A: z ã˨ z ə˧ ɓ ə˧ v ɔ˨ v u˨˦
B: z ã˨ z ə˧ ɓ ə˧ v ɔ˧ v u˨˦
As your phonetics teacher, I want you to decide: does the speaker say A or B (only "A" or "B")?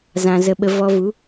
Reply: B